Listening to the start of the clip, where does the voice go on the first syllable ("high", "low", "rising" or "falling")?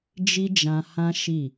high